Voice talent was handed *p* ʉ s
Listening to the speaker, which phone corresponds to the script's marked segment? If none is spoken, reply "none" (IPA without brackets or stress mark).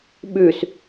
ɓ